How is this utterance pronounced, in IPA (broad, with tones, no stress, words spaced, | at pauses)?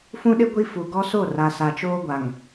fũ˦ɗɪ˦ ɡʷi˦fu˨ ɡɔ˦so˦˨ra˨ sa˨t͡ʃoː˦ɡʷa˨ŋ